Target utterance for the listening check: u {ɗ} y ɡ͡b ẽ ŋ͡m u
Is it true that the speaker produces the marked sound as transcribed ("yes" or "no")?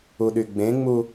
yes